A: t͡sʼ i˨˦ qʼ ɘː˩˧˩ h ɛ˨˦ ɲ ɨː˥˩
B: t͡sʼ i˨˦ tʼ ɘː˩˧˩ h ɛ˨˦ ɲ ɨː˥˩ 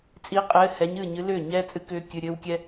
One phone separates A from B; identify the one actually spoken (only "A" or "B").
A